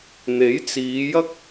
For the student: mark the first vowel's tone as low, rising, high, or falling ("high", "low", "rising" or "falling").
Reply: rising